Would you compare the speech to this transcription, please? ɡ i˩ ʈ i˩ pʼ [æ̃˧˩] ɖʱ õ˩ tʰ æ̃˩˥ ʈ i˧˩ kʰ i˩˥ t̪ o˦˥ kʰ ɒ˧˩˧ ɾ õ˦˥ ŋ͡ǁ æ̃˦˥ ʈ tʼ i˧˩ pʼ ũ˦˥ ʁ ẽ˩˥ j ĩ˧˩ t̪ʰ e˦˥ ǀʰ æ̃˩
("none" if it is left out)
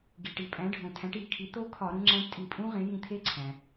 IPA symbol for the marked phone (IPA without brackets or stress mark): æ̃˩˥